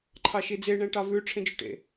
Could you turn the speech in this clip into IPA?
ǃʰ ɑ ʃ i d͡z e ɳ ɛ̃ ʈ ɑ v ʉ ʈ͡ʂʰ ẽ d͡ʒ ʉ ʈ ḛ

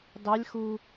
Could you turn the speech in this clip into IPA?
d ɑ lʲ x u

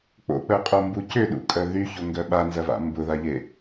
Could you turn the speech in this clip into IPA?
k͡p o̰ k͡p œ qʼ o m b u c ʏ ɗ ṵ kʼ œ ð y ç o ŋ ɡ œ ɓ a n z ɐ v a̰ m b ʊ ð a ʎ e

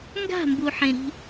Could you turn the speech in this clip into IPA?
ŋ ɡ a̤ m b u ħ ẽ ɾ i̤

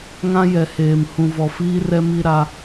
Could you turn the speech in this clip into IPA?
ŋ ã˦ j ɛ˨ h eː˨ m h ũ˨ v ɔ˨ f iː˦ r ɛ˦ m i˦ ɾ a˦

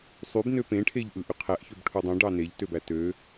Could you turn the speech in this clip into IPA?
sˤ y b n ø p ẽ ʈʰ e ʎ ʔ ɯ ʔ y qʰ æ ʔ ç ø b ʈʰ u dˤ õ ɖ ɑ n e ʎ t ø b æ t ø

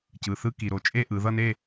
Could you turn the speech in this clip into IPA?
c ɯ˩˧˩ θ ɯ˦˨ k i˩ ɾ o˩˧ t͡ʃʼ e˦˨ ʔ ɯ˩˧ ð ʌ˦˨ n e˦˨

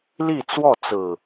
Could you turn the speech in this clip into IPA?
l i˥˨ t͡s w ɔ˥˨ t͡s ɹ̩˨˩

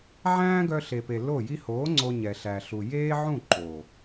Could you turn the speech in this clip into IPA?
ʕ æ̃ː˦ ɡ œ˧ ɬ e˨ p e˨ l o˦˨ j i˧ h oː˨˦ ŋ͡ǀ o˧ ɲ ɛ˨ ɬ æ˨ ɬ u˨ j eː˦ ʕ ũ˦˨ ǃ o˨

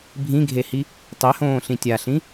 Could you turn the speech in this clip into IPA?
bʱ ĩ ɡʱ e h i | tˤ e h õː ɬ ĩ tʲ a ɬ ĩ

